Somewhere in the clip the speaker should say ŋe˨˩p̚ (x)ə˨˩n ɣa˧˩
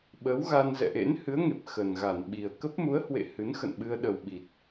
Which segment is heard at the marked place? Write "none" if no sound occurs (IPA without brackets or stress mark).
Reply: x